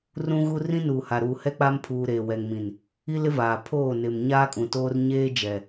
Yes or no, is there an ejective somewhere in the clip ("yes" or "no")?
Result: yes